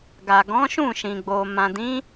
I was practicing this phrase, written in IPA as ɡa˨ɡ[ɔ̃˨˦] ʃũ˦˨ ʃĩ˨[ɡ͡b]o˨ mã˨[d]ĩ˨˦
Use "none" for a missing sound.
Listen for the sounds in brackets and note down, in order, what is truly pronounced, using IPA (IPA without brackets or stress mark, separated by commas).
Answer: ɔ̃˨˦, ɡ͡b, d